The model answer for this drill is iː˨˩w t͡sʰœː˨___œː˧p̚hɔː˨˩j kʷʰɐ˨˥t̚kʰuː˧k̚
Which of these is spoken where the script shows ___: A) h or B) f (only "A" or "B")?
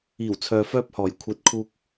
B